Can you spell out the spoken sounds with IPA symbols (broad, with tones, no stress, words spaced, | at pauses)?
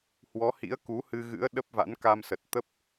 hwɔ˨˦hḭ˧˥ə̯ ku˨˦hɨ˧ɣɨ̰˧˥ə̯ ɗə˦˥p̚ va̰˧˥nka˧msə˨˩t̚ t̪ə˦˥p̚